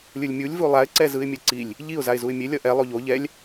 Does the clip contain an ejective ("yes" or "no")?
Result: no